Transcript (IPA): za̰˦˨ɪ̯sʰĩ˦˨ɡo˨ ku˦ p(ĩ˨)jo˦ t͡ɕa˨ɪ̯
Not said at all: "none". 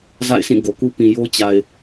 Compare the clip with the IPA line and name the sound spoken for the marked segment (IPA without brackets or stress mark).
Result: ĩ˨